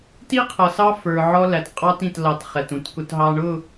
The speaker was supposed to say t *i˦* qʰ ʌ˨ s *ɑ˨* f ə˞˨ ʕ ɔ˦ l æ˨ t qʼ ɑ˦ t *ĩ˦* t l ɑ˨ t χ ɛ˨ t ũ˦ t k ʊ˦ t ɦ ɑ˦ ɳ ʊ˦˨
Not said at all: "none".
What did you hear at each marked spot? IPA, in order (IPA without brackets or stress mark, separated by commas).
i˦, ɑ˦, ĩ˨